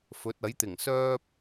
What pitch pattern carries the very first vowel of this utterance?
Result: rising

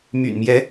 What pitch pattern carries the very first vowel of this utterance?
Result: low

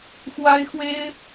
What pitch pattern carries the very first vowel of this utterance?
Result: high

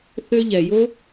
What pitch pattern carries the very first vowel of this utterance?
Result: high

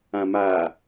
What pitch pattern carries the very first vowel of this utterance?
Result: low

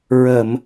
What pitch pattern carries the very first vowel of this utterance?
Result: low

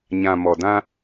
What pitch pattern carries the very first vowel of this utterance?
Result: low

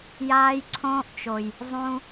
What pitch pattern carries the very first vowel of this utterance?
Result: high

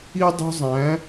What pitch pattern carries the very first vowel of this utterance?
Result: high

